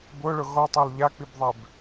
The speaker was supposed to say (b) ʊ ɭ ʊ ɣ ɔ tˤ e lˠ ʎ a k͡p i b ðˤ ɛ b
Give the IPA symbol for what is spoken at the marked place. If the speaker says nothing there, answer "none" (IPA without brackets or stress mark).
b